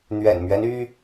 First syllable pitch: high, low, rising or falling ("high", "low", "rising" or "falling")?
low